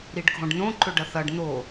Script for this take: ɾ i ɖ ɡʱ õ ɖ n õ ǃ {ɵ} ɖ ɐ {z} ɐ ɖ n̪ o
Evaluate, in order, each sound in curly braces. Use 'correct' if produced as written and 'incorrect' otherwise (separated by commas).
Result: correct, incorrect